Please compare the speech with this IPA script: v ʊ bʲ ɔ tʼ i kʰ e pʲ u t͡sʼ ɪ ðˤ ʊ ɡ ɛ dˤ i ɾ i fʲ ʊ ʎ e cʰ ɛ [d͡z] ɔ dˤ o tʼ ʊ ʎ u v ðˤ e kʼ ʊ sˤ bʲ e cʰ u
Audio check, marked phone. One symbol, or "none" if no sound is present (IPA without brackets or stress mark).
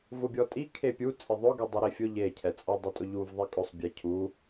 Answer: t͡sʼ